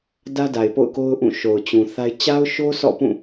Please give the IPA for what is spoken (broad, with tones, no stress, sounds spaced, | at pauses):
d ä˦ d a˨ ɪ̯ p o̰˦˨ ʊ̯ k o˦ ʊ̯ ʔ ũ˦˨ ʃ o˨ ʊ̯ t͡ɕ ũ˨ θ a˦ ɪ̯ t͡ɕ a˦ ʊ̯ ʃ o˦ s ɔ̰˦˨ p ũ˦˨